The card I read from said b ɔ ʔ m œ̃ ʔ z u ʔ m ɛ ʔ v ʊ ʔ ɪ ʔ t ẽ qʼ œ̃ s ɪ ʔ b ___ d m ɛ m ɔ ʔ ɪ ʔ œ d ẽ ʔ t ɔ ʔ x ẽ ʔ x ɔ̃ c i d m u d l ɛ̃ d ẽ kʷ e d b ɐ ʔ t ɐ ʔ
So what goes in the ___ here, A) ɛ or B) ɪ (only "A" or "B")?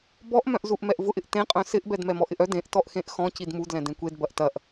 A